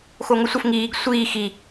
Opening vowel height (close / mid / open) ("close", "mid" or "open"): mid